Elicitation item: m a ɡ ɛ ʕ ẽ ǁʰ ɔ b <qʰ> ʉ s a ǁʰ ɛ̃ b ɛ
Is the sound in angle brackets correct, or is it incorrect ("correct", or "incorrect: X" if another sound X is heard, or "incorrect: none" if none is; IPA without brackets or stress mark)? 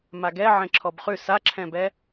incorrect: χ